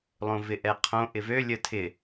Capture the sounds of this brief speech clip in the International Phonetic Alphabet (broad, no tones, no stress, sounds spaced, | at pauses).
lˠ õ v ɪ ʔ ɛ qʰ õ ʔ ɪ v ø lʲ ə tʰ ɪ